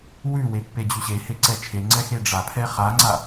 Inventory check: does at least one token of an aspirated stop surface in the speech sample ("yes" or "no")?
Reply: yes